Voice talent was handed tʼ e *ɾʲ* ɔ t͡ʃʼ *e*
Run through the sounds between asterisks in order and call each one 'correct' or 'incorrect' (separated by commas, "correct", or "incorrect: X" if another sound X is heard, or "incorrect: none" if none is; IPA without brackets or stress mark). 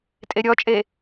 correct, correct